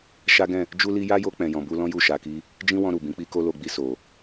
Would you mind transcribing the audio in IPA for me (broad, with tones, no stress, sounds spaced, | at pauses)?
ʃ a˦ ɡ ɛ̃˦˨ | d͡ʒ u˦ l i˦ j a˦ j o˧ k͡p ɛ̃˨ j ɔ̃˨ b u˧ l ɔ̃˦ j u˦˨ ʃ a˧ k i˦ | d͡ʒ ĩ˦ w ɔ̃˧ ɾ u˨ b ĩ˨˦ k͡p i˦ k o˦ l o˧ ɡ͡b i˧ s o˨